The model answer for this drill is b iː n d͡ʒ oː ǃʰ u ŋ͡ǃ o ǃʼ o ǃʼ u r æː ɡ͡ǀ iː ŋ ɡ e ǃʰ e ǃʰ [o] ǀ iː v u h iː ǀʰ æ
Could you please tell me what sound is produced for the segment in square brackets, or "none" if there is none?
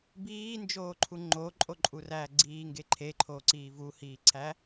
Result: oː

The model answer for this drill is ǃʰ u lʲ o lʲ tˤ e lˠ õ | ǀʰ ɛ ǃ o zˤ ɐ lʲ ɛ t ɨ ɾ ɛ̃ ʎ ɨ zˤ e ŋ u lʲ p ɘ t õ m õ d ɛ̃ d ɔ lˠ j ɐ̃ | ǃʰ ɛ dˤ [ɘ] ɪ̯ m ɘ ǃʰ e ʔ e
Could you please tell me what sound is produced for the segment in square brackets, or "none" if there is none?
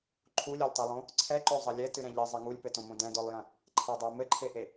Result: ɘ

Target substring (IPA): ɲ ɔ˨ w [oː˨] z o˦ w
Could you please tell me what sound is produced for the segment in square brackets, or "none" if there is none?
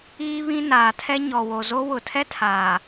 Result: o˨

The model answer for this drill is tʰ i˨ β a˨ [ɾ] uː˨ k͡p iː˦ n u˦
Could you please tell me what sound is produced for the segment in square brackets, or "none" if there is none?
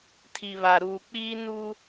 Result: ɾ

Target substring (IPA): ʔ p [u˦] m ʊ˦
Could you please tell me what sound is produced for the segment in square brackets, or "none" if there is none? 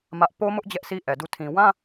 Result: o˦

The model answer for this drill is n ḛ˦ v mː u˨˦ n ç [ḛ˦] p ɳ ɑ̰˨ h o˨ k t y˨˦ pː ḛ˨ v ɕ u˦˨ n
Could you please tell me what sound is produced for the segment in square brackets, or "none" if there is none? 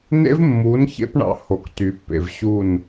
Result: ḛ˦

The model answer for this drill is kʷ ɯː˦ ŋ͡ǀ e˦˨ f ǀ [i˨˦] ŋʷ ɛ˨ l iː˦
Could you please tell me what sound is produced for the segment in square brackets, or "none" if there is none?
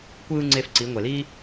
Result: i˨˦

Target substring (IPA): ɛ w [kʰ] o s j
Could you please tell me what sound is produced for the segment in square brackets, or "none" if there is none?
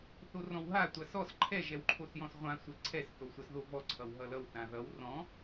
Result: ǃʰ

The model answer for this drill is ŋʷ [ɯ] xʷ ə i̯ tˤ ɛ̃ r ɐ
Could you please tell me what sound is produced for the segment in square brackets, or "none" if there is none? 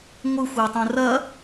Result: ɯ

